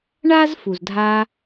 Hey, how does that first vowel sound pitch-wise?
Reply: high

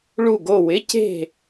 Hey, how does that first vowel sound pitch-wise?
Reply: falling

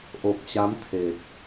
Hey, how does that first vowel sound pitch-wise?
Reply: low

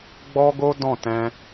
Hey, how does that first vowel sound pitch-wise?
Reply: high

